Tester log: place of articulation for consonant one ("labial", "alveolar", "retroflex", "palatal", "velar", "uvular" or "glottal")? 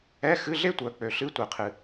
velar